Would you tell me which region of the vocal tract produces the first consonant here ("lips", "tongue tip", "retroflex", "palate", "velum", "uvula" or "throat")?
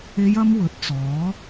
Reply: palate